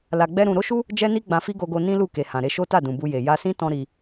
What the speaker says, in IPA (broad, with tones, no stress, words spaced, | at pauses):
la˧ɡ͡bɛ˦ɾũ˧ ɾo˦ʃu˦ | d͡ʒɛ˦ni˦ ɡ͡bã˧fi˦ɡo˧ɡo˧ nĩ˦lu˦˨ ke˨ hã˨ɾe˧ʃo˦ta˦˨ dũ˨bu˧je˨ ja˧sĩ˦ tɔ̃˦ɾi˧